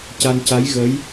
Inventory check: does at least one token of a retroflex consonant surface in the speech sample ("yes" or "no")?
no